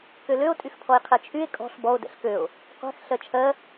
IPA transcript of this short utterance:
k ø l ø o̯ tʼ y x pʰ ɔ e̯ qʰ ɛ t͡ʃʰ y e̯ kʼ ɔ̤ ɬ b ɔ o̯ d ɛ̰ ɬ k ø o̯ | qʷ ɛ̤ x ɬ ɜ t͡ʃʰ ɜ

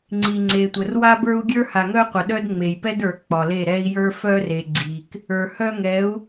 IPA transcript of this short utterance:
ŋ͡ǀ i˨ ŋ͡ǀ e˨ tʷ ə˨ r w a˦ b ə˞˦ u̯ ɡʲ ə˞˦ h a˨ ŋ œ˦ qʷ ə˨ ɗ œ˦ d ŋ͡m e˨ j p ɛ˦ d ə˞˨ k͡p ɒ˨ l e˦˨ ɾ ɛ˦ i̯ j ə˞˦ f œ˦ r e˨ ɡ͡ǀ i˨ k | ə˞˨ h œ˦ ŋ ɛ˨˦ u̯

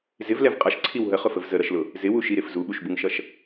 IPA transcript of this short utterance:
z ɪ v l ɛ v qʼ ʌ ʃ ǀʰ i w ɦ ə χ ʊ f ə v z ə ɾ ʌ ʃ l ʊ | z ɪ w u ʃ i ɾ ɪ f z u ɓ u ʃ b u ŋ ʃ ʌ ʃ

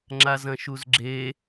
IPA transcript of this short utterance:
ŋ͡ǁ a z ɐ̃ ʃ u z ɡ͡ǁ e

